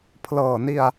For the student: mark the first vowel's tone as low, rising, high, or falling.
low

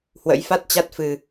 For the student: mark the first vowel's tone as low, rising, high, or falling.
rising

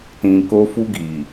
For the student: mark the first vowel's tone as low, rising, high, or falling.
low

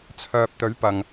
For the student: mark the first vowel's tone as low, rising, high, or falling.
low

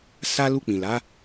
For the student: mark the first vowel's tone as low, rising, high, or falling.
high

